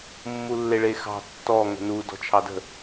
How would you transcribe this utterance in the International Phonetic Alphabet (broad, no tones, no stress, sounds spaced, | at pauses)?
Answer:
mː u lː e ɭ e x ɑ̤ tː ɔ ŋ ə̤ n u d ɔ̤ t͡ʃʰ ɑ d ə̤